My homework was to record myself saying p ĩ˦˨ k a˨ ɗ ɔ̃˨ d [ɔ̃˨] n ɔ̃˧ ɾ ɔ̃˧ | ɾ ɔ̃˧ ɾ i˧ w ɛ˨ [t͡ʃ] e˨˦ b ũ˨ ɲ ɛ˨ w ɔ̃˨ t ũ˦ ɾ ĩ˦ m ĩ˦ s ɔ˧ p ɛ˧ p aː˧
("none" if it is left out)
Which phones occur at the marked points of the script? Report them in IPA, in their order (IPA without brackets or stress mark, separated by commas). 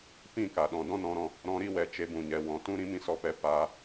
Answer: ɔ̃˦, t͡ʃ